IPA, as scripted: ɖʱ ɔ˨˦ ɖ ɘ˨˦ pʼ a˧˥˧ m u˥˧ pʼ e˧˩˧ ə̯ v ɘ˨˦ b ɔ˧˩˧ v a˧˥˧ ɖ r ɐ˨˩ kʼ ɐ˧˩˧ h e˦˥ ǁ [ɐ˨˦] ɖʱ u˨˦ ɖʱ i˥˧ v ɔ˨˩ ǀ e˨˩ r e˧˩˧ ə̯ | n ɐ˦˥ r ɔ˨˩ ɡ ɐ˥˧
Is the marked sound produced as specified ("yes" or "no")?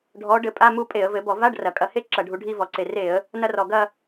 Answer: no